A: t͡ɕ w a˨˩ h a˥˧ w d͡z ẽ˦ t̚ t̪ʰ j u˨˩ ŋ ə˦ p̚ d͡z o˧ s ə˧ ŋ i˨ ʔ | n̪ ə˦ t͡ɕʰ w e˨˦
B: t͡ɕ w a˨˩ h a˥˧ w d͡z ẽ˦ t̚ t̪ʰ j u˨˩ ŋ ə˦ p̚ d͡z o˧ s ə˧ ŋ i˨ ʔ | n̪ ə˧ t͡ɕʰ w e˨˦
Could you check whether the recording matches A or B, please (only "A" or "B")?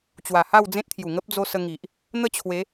A